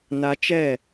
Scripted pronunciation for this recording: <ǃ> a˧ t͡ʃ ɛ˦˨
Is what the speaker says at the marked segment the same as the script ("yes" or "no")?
no